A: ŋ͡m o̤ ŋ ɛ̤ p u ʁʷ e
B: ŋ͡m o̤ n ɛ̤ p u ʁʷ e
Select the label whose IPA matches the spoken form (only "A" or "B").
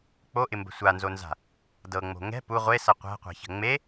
A